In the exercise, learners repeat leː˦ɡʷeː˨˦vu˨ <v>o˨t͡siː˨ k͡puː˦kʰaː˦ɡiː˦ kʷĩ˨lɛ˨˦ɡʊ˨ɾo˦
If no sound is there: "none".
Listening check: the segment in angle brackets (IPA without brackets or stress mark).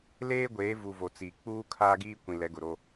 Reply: v